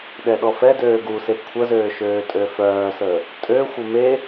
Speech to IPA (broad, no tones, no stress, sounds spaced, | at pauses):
ɗ ɛ ɗ ɔ f ɛ d øː ɡ u s e kʷʰ ə z øː ʃ øː tʼ ø f œː s əː | tʼ ø xʷ ə m e